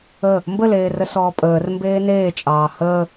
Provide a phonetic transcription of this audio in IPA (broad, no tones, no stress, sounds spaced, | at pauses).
ə | m b ə l eː r ə s ɔː pʼ əː r m b eː n eː t͡ʃʼ ɑː h əː